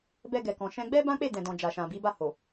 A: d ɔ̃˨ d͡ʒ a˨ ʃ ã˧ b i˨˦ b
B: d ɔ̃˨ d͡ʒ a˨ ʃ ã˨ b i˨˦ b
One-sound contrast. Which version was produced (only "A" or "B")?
B